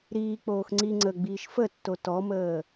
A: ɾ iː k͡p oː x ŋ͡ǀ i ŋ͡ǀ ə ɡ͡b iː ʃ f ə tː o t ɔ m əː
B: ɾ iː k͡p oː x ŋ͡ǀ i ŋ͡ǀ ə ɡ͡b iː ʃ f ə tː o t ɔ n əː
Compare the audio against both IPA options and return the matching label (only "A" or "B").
A